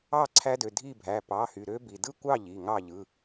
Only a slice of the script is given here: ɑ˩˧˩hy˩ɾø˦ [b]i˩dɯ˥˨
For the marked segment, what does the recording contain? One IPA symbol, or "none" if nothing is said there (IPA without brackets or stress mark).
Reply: b